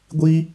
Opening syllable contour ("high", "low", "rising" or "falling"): high